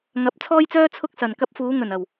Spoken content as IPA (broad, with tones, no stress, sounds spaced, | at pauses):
ŋ ɐ˨˥ p̚ t͡sʰ ɔː˥ j t͡s œː˥ t͡sʰ ʊ˥ k̚ s ɐ˨ n k ɐ˧ p̚ f uː˨˧ ŋ ɵ˨˩ n ɐ˨˩ w